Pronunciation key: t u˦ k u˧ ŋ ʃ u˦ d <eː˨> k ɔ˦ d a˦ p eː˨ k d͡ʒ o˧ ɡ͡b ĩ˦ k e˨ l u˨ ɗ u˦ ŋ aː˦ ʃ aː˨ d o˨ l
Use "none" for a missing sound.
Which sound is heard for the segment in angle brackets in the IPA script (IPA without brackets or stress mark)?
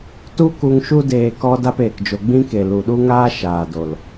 eː˧